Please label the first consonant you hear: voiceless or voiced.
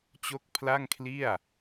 voiceless